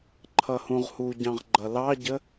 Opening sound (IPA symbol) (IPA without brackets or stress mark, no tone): ǃʰ